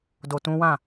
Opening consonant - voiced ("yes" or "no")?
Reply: yes